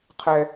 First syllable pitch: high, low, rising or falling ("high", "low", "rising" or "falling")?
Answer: high